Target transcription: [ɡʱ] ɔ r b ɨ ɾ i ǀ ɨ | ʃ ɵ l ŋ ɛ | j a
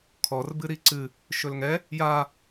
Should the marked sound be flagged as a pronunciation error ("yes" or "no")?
yes